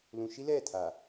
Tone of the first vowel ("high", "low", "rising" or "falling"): low